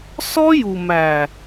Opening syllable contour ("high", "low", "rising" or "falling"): high